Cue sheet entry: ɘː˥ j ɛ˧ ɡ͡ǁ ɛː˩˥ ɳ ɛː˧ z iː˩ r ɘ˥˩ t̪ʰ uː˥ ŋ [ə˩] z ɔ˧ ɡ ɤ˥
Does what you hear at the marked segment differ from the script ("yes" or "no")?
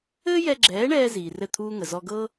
no